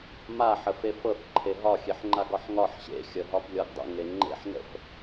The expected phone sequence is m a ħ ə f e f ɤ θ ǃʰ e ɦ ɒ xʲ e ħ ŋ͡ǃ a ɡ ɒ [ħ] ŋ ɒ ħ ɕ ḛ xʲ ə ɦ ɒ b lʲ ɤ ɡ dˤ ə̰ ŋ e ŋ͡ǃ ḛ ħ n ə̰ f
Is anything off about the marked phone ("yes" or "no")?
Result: no